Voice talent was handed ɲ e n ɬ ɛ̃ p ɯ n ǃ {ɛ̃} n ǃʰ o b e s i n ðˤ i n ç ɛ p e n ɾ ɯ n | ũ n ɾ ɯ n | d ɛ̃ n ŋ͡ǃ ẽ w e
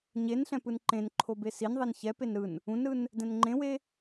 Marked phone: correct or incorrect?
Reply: incorrect